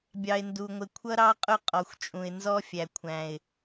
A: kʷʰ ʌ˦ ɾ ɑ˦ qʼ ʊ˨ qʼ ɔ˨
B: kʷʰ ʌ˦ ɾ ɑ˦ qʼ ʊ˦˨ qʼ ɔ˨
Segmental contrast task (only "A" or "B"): B